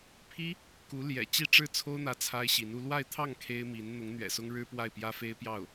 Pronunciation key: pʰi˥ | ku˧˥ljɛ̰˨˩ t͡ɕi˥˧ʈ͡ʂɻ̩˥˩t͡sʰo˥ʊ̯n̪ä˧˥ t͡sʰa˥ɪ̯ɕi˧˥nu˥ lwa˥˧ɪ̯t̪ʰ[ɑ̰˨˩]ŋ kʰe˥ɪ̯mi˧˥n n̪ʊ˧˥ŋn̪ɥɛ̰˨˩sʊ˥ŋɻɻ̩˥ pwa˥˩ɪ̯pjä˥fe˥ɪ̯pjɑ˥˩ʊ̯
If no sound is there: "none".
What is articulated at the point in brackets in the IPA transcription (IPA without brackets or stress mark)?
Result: ɑ˥˩